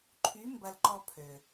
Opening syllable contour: rising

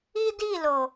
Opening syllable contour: high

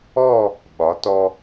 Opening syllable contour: falling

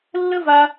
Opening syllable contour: high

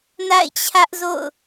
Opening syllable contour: falling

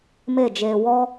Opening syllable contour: falling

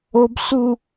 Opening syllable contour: high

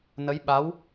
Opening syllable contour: rising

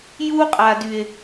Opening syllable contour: high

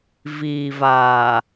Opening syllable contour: low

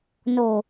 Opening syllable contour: low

